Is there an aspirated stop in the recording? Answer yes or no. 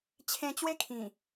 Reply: yes